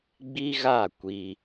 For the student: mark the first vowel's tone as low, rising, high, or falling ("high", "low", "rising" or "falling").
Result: high